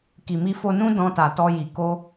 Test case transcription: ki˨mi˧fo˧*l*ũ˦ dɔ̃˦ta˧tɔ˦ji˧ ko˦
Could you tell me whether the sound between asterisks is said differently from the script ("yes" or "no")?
yes